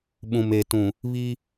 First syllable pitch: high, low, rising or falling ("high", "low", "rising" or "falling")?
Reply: low